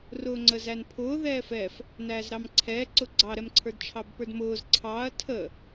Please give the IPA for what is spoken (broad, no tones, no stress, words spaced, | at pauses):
rʊːŋ͡ǀəːzænpʰʊː ðɛːfɛf | næːzɾɑmǀʰɛːǀʊ ɡ͡ǀɑɾɛmǀʰə˞d t͡ʃʰɑbpə˞dmʊːz ǀʰɑɐ̯ tʰə